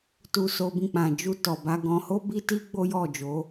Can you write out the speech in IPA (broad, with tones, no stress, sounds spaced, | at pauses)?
t u˧ s o˧ b ĩ˧ k͡p ã˨ d͡ʒ u˧ t ɔ˨ b a˨˦ ɡ ɔ̃˧ h o˦ b i˦ t i˦ ɡ͡b o˦ j ɔ˦˨ d͡ʒ o˨˦